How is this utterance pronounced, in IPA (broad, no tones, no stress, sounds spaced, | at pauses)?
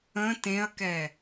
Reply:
ə̃ t ẽ ɐ̯ k ɛ